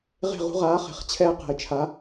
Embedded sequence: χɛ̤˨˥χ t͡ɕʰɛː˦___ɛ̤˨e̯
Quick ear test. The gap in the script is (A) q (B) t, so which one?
A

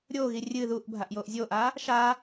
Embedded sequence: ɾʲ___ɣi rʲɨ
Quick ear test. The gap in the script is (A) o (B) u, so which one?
A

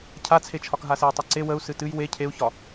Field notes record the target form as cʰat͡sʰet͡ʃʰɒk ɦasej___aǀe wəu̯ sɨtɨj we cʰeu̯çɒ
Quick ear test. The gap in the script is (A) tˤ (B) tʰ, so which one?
A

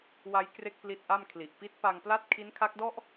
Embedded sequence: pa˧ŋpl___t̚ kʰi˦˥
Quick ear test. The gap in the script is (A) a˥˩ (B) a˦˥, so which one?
A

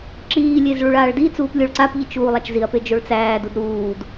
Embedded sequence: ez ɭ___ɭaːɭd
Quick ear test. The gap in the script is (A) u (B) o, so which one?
A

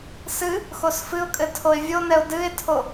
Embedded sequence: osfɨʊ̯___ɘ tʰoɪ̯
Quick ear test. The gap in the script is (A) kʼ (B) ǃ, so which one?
A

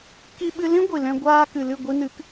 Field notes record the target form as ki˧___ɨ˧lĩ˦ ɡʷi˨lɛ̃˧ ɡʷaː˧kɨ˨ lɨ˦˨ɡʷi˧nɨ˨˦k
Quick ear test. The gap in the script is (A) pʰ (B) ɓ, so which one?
B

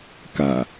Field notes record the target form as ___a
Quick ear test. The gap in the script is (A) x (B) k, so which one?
B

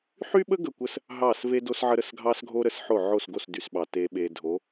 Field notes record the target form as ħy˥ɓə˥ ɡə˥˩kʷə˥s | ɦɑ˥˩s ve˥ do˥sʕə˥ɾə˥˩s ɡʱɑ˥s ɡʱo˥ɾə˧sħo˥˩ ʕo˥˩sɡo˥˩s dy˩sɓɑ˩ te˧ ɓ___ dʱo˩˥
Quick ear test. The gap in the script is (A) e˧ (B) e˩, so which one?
A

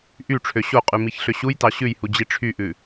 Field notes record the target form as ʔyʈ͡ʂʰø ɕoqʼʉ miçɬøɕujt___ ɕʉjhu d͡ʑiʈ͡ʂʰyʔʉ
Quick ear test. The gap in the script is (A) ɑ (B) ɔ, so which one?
A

